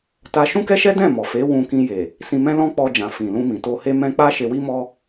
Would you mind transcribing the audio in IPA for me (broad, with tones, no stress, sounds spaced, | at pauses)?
t a˧ ʃ ũ˦ k ɛ˦ ʃ ɛ˦ d ɛ̃˦˨ m ɔ˨ f e˨˦ w ũ˧ k ĩ˧ j e˨ | s ĩ˧ m ɛ̃˦ l ɔ̃˦ k͡p ɔ˧ d͡ʒ ã˨ f ĩ˨ l ũ˧ m ĩ˨ t o˧ h e˦ m ɛ̃˦ k͡p a˦ ʃ e˧ w i˦ m ɔ˦